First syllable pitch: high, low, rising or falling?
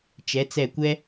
rising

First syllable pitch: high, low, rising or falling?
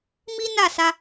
high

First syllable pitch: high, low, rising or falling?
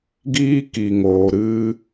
high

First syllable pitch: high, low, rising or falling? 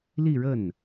falling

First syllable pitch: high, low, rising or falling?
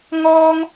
high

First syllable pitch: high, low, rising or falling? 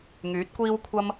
rising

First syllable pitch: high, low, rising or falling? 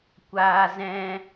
high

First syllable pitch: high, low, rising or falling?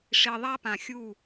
low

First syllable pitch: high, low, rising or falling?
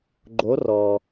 rising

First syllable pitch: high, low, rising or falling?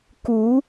rising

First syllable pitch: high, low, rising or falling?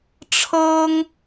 high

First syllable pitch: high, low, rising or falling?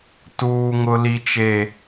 low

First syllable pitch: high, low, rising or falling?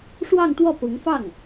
falling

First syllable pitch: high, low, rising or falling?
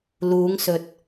rising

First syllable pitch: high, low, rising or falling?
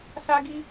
high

